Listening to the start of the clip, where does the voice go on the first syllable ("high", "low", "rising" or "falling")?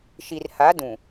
low